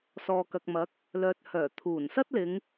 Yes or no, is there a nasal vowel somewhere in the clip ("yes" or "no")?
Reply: no